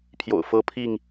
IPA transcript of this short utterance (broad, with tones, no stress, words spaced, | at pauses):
pʰjo̰˨˩ʊ̯fɤ˦pʰi˥˨ŋ